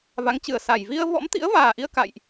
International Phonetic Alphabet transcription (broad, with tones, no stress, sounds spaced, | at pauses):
v a˨˦ ŋ t͡ɕ ɨ˨˩ ə̯ s a˨˩ j v i˧ ə̯ v ɔ̰˧˥ m t̪ ḭ˧˥ ə̯ v aː˨˩ ʔ i˧ ə̯ k a̰˧˨ j ʔ